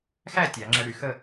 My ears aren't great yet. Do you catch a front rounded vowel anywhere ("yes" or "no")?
yes